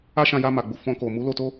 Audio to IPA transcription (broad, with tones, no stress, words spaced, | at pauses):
a˦ʃã˧ja˧ ma˨ɡ͡bu˨ fɔ̃˧ko˨ mu˨˦lo˧to˦